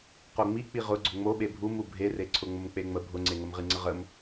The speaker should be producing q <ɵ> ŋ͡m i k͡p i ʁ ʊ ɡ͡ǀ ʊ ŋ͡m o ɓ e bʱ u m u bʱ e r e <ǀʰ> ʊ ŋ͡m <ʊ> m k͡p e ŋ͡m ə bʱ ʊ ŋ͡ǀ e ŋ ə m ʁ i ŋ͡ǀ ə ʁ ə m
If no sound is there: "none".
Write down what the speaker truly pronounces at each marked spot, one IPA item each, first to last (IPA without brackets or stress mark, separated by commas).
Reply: o, ǀʰ, ʊ